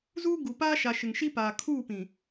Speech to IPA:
z uː˦ ɡ u˨ p aː˦ ʃ a˨ ʃ ɪ˨ ŋ ʃ i˦ p aː˨ kʰ uː˦˨ p ĩ˨

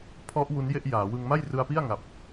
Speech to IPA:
pʰ ɔ˦˥ ʔ w u˦˥ n j e˥˩ ʔ j aː˩˦ w ɯ˧ ŋ m a˥˩ j r ɯ˧ a̯ p i˥˩ a̯ ŋ a˨˩ p̚

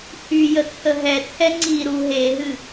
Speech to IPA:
h y j ə t͡sʰ ə ɦ ɛ t͡sʰ ɛ ŋ͡ǀ i ɾ u ɦ e ɦ ɨ

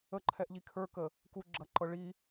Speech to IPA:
ə ǃʰ ɛ ʔ ʎ i kʰ ə˞ k ə | k u ɡ͡ǁ ɐ ǃ ɤ ɭ i

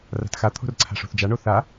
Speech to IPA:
r a̤ t x a t̪ʰ o̤ r ǀʰ a̤ ʂ o̤ θ d͡ʒ a ɳ o θ a

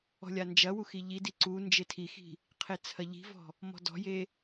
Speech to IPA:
ɔ̤ lʲ a n d͡ʒ ɐ w u x i ʎ i d i ǀ u n d͡ʒ e tʰ i x i̤ | qʰ e t͡sʰ ɐ ʎ i̤ v ɔ̤ | m ɔ̤ d ɔ̤ j e

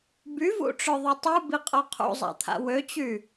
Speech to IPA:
b y v ṵ ʈ͡ʂ œ ðˤ o tˤ u b i qʼ ɔ qʰ ṵ zˤ a̰ t̪ʰ a̰ w ø t͡ɕ y

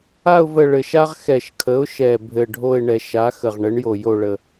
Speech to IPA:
a˦˨ ʊ̯ v ə˦˨ ɭ ɘ˨˩ ʃ a˥ ʁ x ɛ˨˩ ʃ kʰ ə˩˥ ʊ̯ ʃ ɛ˨˩ bʱ ɘ˨˩ ɖʱ o˦˨ ɪ̯ ɳ ɛ˨˩˦ ʃ a˩˥ x ə˨˩ ʁ ɳ ɘ˩˥ ɳ j o˨˩ j o˦˨ ɭ ə˨˩

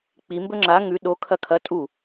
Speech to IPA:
k͡p i m b ɵ ŋ͡ǁ a ŋ ʉ ɗ o kʰ ɐ kʰ ɐ tʼ u

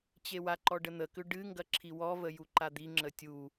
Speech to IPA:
t͡ɕ e w a ǃ ɔ ɖ ə n̪ ə k ʏ ɖ ɨ ŋ ɡ ɐ ǁʰ i w ɔ v ə j u ǃ a d̪ i ŋ͡ǁ ə tʲ u

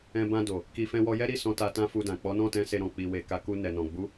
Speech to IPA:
ɛ̃˧ b ã˧ d o˨ | k i˧ f ɛ̃˧ w ɔ˧ j ɛ˦ ɾ i˦˨ s ɔ̃˧ t a˧ t ã˦ f u˧ d ã˨ k͡p ɔ˨˦ n ɔ̃˦˨ t ɛ̃˧ s e˧ ɾ ɔ̃˨ k͡p i˨ w e˨ k a˨˦ k u˧ n ɛ˨ n ɔ̃˨ ɡ͡b u˨˦

